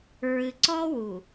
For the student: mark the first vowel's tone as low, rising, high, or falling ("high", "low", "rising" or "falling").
low